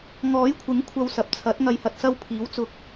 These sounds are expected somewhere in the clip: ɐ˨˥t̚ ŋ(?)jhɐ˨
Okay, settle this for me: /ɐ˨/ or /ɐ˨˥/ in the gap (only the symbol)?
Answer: ɐ˨